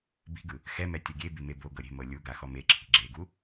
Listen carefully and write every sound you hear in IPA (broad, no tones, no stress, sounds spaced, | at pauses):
b i̤ ɡ ɯ | x ɛ m ɛ tʲ ɤ ɡʲ e b i m e b o ɡ ɤ ɾʲ e̤ m ɤ lʲ u ɡ a x ɔ m e ǁʰ i̤ ɡ͡ǁ e ɡ u